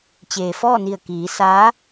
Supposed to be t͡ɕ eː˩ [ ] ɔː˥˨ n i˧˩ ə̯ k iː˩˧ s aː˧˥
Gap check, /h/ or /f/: f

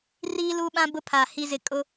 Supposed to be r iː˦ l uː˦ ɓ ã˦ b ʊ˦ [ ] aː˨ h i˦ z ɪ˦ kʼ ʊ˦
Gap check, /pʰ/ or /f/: pʰ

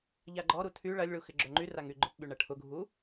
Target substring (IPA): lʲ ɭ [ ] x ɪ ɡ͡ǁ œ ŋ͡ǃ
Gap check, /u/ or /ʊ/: u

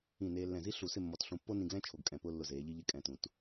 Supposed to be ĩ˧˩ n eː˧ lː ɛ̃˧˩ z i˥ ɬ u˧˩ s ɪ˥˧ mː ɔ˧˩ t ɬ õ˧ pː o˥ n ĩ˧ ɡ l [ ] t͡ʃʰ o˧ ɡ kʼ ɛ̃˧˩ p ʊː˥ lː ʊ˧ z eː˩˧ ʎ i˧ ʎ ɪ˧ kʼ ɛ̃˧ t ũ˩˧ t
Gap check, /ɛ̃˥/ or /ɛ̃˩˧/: ɛ̃˥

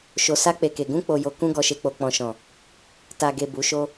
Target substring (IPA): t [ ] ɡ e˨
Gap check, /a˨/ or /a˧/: a˨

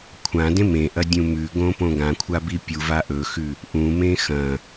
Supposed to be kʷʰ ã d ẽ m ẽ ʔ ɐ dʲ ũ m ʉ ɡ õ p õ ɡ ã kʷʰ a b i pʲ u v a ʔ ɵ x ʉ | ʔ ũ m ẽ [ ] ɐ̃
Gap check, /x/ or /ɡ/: x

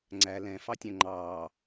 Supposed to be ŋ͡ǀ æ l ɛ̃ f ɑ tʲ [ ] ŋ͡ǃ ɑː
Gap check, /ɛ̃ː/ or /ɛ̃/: ɛ̃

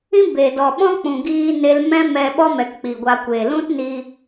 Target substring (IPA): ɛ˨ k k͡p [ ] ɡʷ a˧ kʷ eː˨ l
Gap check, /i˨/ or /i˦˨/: i˨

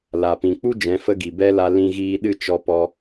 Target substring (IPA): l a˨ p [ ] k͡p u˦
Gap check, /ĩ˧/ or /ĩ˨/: ĩ˨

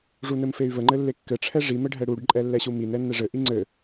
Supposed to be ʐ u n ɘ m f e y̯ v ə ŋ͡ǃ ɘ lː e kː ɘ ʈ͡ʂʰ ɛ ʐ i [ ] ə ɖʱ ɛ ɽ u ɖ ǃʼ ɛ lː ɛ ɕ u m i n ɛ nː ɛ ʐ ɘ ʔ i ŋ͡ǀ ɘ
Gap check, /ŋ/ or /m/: m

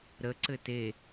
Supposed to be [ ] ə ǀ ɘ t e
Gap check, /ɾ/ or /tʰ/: ɾ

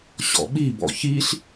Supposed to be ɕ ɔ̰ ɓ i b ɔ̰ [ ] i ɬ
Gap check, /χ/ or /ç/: ç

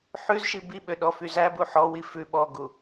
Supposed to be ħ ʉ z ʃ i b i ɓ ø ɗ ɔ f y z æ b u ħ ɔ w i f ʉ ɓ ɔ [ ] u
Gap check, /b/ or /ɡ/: ɡ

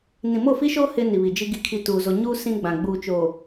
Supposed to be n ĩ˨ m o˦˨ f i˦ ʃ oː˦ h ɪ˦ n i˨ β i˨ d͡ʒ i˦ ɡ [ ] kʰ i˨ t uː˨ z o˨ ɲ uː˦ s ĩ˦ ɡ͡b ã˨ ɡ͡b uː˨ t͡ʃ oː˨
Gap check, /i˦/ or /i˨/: i˨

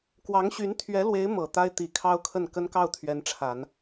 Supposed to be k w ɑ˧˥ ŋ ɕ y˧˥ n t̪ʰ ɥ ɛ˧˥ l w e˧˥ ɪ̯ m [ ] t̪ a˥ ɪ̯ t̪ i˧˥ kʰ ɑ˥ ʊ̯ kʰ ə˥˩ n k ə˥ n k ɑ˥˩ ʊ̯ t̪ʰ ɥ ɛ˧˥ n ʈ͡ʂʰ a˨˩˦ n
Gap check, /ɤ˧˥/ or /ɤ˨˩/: ɤ˨˩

